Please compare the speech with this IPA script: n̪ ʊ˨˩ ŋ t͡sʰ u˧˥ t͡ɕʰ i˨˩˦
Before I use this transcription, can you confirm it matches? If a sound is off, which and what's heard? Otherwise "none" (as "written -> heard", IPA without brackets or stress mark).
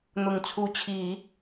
none